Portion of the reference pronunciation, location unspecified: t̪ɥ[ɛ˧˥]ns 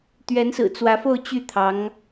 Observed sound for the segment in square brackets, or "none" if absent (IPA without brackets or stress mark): ɛ˧˥